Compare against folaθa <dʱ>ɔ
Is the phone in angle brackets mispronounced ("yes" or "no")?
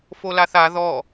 yes